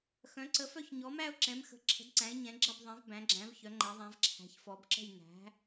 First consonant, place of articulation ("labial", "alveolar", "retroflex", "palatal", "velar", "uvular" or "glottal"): velar